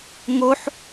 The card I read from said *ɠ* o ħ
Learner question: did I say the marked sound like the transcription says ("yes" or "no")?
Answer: no